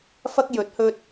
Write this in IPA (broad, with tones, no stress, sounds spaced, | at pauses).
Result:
f ɐ˧ k̚ j ɵ˨˥ t̚ h ɵ˧ t̚